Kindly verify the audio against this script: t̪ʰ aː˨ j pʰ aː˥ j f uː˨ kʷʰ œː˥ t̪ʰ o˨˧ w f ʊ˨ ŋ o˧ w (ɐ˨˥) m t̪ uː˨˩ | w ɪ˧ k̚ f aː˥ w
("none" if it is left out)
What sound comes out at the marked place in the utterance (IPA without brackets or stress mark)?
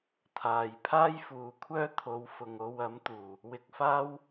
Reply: ɐ˨˥